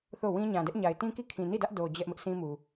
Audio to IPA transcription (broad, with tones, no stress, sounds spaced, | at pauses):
θ o˦˨ w ĩ˦ ɲ ã˨ d ɛ˦ ʔ ɲ a˨ ɪ̯ t ĩ˦ k i˦˨ kʰ ĩ˨ n i˦˨ d ä˦ ʔ d o˨ d͡ʑ ɛ˦ ʔ m ɪ˦ ʔ sʰ ĩ˦ m u˨